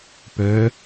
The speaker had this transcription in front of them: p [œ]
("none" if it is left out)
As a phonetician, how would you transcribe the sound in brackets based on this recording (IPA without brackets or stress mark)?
œ